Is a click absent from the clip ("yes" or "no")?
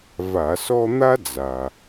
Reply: yes